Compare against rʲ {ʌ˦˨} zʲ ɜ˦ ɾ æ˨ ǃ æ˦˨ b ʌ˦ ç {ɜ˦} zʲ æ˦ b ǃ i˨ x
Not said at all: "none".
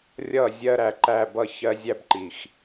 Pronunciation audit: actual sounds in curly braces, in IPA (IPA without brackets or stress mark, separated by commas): ʌ˦˨, ɜ˦